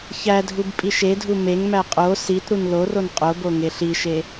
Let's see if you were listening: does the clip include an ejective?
yes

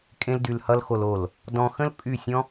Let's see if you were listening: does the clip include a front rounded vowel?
yes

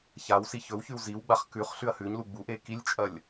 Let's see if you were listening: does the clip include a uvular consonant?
yes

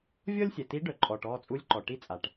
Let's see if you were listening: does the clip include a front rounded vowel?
yes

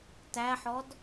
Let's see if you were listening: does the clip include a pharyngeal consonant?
yes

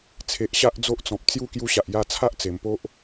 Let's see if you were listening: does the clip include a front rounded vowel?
no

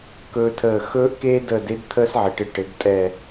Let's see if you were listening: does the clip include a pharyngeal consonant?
yes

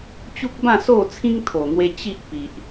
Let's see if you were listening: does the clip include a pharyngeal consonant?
no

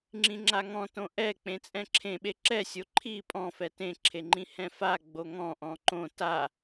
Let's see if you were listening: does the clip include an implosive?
yes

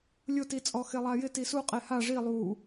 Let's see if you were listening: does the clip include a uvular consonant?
yes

